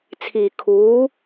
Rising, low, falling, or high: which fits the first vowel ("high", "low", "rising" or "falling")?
low